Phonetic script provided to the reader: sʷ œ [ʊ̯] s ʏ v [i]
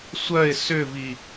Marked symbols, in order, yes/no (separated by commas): no, yes